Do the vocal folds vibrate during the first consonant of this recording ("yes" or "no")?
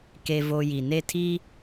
no